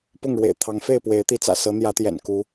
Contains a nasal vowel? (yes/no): no